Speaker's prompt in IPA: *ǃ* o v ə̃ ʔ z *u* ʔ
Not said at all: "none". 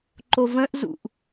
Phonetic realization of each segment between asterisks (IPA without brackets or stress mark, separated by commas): ǃ, ṵ